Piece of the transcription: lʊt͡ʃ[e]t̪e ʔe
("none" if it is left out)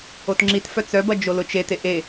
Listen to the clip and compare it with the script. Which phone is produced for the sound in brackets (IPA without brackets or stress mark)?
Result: e